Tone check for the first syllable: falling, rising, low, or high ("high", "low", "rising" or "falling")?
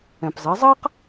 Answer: low